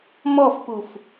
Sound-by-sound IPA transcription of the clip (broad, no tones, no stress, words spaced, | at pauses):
mɔfpuf